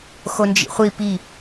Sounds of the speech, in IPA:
x o n d͡ʒ ḭ χʷ i p i

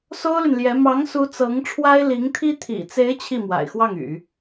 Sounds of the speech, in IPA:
s o˥ ʊ̯ l y˨ n l j ɛ˧˥ m ɑ˧˥ ŋ s u˧˥ t͡s ɤ˧˥ ŋ ʈ͡ʂʰ w a˥ ɪ̯ l i˧˥ ŋ t̪ʰ i˥ t̪ʰ ḭ˨˩ t͡s e˧˥ ɪ̯ t͡ɕʰ i˥˩ m w a̰˨˩ ɪ̯ x w ɑ˥˩ ŋ y̰˨˩˦

